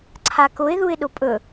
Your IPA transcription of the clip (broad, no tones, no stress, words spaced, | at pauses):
ǀʰakʊɪ̯ ðuɪ̯ɗʊpʼɵ